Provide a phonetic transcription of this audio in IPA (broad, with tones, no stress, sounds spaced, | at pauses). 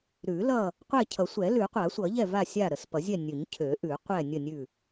ɾ ʉ˨˩˦ l ʌ˦˨ | qʷ ɛ˦˨ cʰ ʌ˨˩˦ sʷ ɛ˨˩˦ l ʉ˨˩˦ qʷ a˨˩˦ sʷ ʌ˨˩˦ ʎ ɛ˦˨ v a˦˨ sʲ a˦˨ ɾ ə˨˩˦ s p ʌ˨˩˦ zʲ ɛ˦˨ nʲ ʉ˨˩˦ ɲ cʰ ø˨˩˦ ʔ ʉ˨˩˦ qʷ ɛ˦˨ nʲ ə˦˨ nʲ ʉ˦˨